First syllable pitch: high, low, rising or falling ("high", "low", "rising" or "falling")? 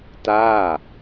falling